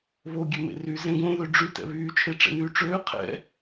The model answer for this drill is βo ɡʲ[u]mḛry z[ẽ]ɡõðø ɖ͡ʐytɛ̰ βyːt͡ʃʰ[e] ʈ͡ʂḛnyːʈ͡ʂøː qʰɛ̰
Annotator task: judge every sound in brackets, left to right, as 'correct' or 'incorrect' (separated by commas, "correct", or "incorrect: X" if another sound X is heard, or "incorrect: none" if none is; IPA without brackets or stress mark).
incorrect: ø, correct, correct